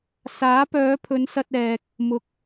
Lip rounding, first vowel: unrounded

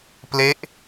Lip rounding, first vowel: unrounded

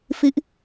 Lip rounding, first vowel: unrounded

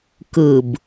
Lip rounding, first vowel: unrounded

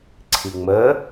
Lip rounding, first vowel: unrounded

